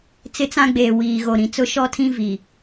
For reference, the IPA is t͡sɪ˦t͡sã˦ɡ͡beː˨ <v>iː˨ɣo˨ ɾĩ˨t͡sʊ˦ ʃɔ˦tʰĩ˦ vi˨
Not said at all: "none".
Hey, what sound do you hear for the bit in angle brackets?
w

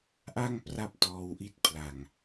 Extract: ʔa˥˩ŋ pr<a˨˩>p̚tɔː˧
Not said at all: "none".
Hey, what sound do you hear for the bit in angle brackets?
a˥˩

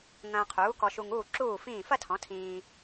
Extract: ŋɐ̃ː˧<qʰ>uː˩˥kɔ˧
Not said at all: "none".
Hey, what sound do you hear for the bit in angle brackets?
qʰ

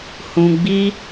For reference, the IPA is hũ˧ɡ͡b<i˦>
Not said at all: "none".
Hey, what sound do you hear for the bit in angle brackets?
i˦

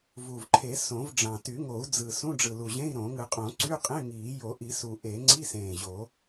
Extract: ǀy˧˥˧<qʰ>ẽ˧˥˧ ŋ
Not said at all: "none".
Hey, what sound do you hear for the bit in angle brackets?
qʼ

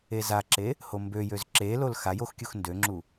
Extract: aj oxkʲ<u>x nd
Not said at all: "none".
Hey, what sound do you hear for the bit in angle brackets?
u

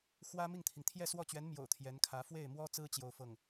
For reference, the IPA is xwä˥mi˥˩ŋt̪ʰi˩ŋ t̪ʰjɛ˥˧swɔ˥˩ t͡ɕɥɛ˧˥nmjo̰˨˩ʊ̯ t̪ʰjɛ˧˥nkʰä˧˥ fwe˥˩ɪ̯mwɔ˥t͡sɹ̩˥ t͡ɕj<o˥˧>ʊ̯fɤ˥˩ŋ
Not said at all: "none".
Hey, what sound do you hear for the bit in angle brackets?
o˥˧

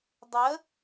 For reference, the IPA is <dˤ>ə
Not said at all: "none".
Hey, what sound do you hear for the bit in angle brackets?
dˤ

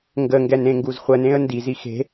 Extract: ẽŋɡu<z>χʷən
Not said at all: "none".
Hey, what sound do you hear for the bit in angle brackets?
z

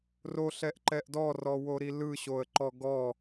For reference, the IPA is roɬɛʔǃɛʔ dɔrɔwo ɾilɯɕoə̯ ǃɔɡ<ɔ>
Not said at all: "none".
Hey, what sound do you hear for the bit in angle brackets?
ɔ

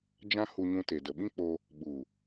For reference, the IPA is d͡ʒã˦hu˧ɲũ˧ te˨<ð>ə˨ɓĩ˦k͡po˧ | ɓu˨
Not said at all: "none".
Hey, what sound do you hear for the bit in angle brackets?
d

